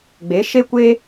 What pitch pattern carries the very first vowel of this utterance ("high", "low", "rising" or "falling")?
rising